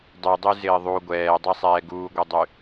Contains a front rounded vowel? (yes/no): yes